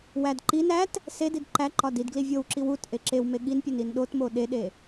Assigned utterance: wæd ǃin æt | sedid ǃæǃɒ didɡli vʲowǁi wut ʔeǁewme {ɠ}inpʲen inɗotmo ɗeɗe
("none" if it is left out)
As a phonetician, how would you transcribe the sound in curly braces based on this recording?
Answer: ɠ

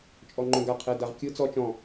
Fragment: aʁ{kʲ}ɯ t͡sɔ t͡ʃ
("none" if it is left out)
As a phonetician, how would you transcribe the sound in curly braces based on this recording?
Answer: kʲ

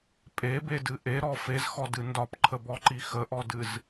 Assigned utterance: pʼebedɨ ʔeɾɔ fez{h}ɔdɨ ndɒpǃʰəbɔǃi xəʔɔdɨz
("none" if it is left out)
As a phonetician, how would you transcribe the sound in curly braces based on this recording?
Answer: x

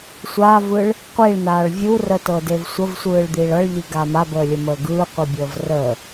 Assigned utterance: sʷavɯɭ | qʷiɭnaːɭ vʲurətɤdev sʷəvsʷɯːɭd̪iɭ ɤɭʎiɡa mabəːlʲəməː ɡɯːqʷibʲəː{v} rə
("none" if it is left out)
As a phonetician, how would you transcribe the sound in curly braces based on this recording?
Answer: v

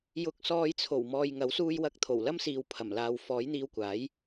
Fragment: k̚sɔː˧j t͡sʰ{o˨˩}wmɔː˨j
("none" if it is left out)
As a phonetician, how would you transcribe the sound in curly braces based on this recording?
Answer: o˨˩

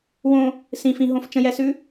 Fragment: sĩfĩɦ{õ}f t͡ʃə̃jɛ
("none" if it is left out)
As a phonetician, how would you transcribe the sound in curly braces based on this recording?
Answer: õ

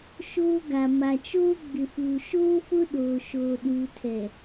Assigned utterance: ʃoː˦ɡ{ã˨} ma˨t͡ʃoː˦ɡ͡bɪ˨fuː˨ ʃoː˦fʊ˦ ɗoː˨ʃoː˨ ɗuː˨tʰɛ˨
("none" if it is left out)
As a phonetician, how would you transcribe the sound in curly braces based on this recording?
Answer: a˨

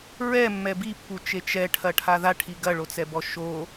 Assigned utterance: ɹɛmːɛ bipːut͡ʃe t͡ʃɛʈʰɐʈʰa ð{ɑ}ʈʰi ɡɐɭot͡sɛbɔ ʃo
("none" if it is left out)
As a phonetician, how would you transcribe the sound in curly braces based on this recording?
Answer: a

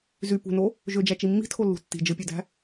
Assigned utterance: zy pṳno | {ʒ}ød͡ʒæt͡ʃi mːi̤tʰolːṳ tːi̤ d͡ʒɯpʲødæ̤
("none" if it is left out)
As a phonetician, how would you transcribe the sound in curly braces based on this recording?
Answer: ʒ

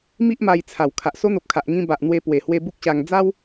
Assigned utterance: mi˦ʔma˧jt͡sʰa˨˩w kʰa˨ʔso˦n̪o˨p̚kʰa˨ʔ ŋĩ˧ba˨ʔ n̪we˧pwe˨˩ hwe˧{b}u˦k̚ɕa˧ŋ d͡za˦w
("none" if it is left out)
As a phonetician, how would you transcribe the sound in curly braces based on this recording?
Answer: b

